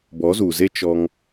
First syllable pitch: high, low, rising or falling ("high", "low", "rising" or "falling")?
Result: rising